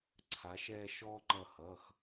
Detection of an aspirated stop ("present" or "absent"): present